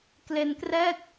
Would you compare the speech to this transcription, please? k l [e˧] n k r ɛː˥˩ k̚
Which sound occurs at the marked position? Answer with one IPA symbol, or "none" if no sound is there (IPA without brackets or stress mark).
e˧